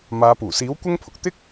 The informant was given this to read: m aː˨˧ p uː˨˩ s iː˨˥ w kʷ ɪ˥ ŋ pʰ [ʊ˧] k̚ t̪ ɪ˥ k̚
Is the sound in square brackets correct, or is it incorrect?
incorrect